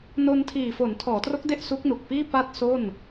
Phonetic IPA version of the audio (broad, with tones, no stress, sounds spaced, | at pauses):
n o˧ n tʰ iː˨˩ f o˩˦ n tʰ ɔː˩˦ t r o˦˥ k̚ d e˥˩ ʔ s u˦˥ k̚ n u˨˩ k̚ p iː˥˩ p a˥˩ t̚ s o˥˩ n